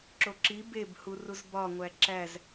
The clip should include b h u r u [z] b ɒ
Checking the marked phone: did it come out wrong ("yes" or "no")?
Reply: no